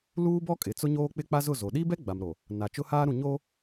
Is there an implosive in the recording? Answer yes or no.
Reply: yes